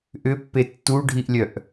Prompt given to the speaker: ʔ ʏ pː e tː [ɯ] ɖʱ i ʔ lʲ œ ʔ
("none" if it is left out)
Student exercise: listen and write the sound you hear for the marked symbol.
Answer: u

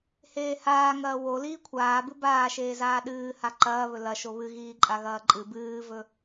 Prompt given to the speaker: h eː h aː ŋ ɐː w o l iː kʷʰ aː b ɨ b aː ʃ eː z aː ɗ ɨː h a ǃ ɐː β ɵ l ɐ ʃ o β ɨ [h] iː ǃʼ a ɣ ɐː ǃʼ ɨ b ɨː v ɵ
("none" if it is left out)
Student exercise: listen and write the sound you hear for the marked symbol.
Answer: ɣ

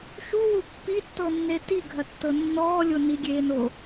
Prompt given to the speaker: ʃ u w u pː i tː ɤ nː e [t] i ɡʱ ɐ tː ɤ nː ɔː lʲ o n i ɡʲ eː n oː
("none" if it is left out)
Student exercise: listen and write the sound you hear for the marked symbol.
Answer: t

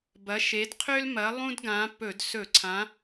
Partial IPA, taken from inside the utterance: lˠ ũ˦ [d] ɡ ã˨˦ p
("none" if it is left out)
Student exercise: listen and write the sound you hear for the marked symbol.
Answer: d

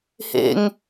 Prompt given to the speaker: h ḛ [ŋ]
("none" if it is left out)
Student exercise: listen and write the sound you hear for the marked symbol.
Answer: ŋ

